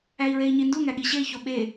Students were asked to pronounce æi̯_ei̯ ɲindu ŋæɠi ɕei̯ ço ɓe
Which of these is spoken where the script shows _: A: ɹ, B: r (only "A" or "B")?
A